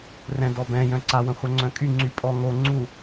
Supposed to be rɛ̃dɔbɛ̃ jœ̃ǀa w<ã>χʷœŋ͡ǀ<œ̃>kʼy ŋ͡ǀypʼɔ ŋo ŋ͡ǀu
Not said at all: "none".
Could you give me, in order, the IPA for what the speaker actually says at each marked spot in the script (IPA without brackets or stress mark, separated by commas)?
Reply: ə̃, œ̃